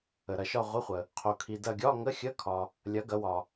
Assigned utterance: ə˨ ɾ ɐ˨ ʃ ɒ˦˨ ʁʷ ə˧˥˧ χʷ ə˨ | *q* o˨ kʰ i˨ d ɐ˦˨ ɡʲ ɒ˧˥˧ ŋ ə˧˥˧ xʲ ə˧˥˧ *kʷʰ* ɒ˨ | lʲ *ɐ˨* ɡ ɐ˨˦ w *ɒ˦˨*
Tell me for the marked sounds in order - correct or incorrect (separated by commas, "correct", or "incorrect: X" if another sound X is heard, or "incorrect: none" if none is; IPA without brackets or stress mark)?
incorrect: qʰ, incorrect: kʰ, incorrect: ɐ˨˦, incorrect: ɒ˨